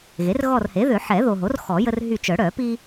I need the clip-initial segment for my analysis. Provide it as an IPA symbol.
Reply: ɣ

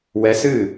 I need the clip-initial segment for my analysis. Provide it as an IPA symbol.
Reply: w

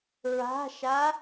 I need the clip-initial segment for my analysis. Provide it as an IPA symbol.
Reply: ɹ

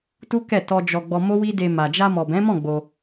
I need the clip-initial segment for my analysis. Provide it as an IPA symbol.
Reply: t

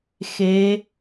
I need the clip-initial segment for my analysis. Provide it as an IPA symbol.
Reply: x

